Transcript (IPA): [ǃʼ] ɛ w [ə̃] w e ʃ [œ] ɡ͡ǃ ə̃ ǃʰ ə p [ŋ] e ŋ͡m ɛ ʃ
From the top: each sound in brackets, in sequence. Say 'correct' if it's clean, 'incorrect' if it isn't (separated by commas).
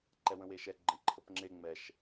incorrect, correct, incorrect, incorrect